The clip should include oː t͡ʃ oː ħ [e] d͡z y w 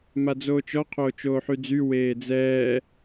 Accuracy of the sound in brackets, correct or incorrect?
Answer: incorrect